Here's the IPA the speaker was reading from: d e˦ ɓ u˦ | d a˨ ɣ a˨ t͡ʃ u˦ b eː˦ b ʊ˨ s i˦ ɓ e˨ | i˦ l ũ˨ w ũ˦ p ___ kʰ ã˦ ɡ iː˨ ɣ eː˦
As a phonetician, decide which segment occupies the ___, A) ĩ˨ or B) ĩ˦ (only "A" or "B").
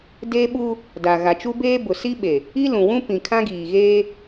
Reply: A